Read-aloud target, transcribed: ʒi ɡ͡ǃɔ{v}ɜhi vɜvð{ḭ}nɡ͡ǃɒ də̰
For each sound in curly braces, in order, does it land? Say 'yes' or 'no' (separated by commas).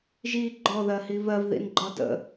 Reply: no, yes